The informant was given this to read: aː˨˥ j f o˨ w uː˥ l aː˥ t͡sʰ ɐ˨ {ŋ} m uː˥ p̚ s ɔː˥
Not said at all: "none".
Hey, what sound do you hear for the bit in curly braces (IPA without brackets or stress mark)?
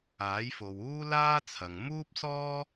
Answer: ŋ